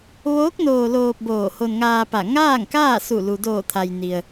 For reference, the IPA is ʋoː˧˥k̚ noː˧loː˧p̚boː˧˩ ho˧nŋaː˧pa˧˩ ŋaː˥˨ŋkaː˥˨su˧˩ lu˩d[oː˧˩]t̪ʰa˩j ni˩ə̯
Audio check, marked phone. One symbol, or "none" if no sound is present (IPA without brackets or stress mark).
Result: oː˧˩